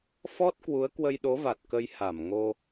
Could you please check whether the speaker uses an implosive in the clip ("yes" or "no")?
yes